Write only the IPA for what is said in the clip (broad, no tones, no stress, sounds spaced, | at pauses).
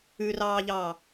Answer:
ʉ r ɑː ʎ ɑː